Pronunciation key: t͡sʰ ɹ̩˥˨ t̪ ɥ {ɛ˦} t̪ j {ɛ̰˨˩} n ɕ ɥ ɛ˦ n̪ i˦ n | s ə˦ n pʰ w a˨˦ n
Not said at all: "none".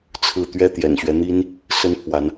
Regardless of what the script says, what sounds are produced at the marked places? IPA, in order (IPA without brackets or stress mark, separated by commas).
ɛ˥˨, ɛ̰˨˩